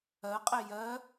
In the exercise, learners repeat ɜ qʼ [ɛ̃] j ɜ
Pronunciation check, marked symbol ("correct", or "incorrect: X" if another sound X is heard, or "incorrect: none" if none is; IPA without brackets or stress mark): incorrect: ɛ